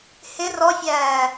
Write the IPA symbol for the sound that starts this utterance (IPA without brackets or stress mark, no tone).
h